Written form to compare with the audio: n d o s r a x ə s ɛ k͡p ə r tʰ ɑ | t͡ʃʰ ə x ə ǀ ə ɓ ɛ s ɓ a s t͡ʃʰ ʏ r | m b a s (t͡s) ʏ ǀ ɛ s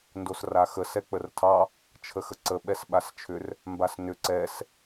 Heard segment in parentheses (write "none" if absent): n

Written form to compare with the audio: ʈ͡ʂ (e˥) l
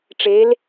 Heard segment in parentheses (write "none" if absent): e˩˧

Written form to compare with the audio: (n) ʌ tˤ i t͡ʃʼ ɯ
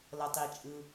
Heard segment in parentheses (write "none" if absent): l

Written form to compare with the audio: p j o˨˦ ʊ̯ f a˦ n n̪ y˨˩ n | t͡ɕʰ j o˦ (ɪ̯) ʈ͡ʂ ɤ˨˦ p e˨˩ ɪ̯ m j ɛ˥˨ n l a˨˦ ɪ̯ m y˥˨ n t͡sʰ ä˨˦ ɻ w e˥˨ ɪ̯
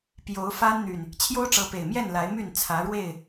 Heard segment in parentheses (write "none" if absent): ʊ̯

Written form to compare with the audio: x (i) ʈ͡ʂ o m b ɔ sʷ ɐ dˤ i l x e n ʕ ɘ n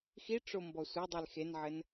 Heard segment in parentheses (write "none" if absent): i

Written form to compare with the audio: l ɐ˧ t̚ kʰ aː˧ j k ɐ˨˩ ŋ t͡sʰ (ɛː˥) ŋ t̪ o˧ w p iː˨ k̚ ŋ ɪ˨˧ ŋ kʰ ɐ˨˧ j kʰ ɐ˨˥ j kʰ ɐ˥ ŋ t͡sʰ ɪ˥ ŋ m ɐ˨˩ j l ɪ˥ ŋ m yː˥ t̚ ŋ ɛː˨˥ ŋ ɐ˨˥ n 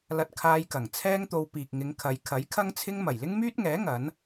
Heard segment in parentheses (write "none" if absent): ɛː˥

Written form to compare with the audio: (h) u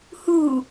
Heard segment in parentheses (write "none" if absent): h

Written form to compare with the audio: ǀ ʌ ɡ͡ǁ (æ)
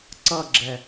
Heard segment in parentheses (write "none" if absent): ɛ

